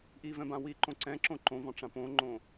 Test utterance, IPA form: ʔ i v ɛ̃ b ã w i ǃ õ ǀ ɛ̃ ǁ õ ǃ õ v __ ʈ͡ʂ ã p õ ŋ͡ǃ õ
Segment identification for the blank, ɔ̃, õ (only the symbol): ɔ̃